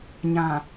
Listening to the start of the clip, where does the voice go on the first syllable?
low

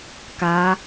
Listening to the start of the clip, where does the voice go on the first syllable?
rising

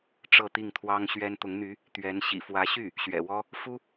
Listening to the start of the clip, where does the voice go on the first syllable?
falling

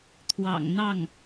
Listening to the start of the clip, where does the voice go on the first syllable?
low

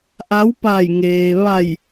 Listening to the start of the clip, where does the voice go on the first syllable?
rising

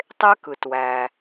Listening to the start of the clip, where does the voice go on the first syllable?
high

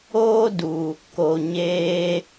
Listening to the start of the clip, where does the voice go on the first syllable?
high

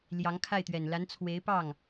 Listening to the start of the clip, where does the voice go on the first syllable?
rising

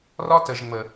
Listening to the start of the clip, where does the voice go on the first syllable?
high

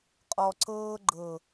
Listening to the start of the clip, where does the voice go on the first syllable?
low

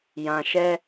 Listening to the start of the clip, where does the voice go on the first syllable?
low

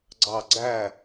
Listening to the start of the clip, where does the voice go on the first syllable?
falling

